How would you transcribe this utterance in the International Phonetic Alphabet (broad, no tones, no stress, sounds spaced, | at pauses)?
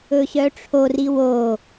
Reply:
ɵ ɕ œ ʈ͡ʂʰ o r i w o